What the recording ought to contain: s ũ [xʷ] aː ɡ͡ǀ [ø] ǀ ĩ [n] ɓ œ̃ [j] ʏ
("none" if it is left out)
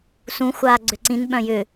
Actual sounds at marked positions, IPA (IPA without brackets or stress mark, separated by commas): xʷ, ø, n, j